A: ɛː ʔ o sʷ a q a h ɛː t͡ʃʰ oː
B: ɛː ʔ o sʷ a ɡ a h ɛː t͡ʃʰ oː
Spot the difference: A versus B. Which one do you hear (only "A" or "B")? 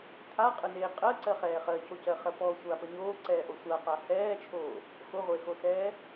A